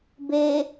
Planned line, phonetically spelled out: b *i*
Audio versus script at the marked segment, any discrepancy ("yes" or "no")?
yes